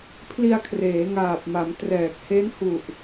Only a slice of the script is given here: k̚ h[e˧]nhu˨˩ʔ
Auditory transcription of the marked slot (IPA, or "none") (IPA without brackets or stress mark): e˦˥